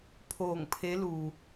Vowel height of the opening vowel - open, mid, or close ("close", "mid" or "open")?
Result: mid